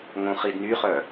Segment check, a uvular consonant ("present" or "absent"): present